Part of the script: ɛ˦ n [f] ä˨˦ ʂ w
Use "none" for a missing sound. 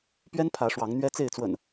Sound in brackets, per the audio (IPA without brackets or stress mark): pʰ